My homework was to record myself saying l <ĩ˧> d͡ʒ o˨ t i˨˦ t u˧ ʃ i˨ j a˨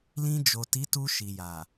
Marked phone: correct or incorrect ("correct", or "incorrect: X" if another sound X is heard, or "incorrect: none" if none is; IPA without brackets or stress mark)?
correct